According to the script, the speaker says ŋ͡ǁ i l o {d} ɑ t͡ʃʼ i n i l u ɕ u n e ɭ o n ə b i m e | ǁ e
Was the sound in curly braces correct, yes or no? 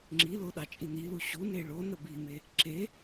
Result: no